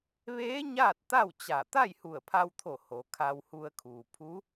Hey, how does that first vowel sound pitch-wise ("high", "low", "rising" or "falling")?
rising